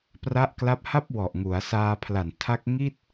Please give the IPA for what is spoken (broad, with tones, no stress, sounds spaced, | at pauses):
p r a˥˩ ʔ k l a˥˩ p̚ h a˥˩ p̚ w ɔ˨˩ ʔ ŋ u˩˦ a̯ s aː˧ pʰ l a˨˩ n tʰ a˦˥ k̚ ŋ i˥˩ t̚